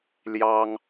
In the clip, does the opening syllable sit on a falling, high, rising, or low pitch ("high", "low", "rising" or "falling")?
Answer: high